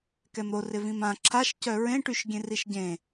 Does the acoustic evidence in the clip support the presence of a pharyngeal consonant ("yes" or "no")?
no